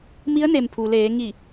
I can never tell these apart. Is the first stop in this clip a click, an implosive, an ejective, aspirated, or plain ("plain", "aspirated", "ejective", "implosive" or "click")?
aspirated